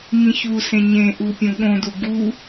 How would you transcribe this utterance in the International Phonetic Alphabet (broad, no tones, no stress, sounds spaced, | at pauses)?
ŋ ĩ ç u s ẽ ɲ ẽ ʔ u pʲ ũ ɠ õ d u ɡ u